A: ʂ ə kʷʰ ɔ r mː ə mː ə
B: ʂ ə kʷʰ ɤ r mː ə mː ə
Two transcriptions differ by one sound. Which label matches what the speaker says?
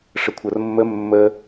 B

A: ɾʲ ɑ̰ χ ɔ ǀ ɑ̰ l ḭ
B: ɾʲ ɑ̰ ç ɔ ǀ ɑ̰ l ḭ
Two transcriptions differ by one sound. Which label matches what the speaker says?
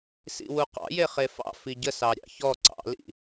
B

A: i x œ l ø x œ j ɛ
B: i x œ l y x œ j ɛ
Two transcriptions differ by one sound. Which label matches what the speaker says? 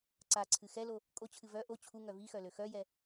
A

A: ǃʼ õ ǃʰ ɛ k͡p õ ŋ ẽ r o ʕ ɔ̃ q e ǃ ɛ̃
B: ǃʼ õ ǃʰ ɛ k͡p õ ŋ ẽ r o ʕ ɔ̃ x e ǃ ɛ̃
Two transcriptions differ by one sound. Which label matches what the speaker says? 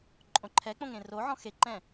B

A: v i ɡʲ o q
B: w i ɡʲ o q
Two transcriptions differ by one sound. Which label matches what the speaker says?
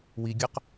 B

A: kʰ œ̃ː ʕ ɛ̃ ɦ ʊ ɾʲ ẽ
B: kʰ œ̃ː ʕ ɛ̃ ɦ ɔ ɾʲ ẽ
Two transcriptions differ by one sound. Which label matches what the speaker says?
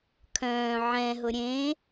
A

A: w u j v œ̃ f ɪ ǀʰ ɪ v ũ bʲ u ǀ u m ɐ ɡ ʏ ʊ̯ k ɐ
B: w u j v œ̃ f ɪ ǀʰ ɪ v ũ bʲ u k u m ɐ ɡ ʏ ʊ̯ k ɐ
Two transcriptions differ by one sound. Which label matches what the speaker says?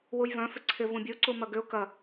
A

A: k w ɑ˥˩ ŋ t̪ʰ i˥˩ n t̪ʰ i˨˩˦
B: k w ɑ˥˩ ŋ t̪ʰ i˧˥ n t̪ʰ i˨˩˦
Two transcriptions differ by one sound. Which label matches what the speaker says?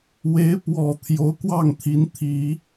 B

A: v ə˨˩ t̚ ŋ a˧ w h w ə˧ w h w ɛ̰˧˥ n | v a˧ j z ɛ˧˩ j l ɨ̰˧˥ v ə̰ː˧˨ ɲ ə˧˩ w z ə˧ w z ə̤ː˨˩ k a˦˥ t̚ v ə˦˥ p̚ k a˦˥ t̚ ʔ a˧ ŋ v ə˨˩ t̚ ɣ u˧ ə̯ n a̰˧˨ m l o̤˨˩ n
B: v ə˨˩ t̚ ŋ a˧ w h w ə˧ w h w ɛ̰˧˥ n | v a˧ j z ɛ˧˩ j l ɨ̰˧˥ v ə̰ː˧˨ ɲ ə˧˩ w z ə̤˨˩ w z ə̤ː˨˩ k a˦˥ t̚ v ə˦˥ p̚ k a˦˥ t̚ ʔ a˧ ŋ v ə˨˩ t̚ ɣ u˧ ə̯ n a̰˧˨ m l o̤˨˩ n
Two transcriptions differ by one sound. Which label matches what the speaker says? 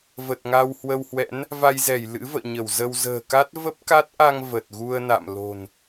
A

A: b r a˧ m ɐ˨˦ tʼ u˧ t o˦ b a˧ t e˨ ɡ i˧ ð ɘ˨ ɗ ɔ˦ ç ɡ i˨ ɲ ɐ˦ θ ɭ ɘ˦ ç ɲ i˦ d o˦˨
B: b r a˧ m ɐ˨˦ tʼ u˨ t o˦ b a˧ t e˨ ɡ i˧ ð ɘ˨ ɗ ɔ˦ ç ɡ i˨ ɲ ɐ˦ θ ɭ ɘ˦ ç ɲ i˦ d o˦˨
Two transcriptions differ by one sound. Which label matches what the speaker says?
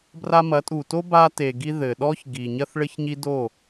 B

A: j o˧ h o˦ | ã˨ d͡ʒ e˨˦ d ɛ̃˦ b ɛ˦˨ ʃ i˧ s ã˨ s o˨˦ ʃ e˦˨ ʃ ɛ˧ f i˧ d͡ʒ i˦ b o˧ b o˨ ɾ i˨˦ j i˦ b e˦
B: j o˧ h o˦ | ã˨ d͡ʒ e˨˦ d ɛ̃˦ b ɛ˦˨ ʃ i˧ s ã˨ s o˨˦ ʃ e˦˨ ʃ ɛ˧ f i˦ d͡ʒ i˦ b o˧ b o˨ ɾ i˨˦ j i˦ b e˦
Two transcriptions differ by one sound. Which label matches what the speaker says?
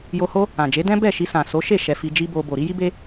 A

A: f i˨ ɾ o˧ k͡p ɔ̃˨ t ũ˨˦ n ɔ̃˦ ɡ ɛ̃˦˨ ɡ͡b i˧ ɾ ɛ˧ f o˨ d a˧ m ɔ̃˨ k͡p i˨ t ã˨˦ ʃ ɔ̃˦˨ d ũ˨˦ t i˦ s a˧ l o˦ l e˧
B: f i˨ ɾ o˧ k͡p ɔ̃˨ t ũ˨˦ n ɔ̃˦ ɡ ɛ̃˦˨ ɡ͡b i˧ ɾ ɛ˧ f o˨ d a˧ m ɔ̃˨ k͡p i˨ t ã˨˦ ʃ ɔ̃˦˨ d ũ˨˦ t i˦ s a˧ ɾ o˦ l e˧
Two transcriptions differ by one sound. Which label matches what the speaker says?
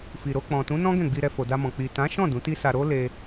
B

